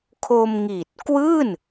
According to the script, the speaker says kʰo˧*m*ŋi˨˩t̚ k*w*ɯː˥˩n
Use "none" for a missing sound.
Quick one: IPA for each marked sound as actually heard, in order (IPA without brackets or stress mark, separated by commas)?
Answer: m, w